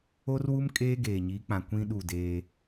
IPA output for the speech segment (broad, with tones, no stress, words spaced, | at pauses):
o˦rwu˦m kʼeː˦ɡeː˨ɲi˨˦ k͡pã˨ kʷĩ˦ ɗu˦˨deː˦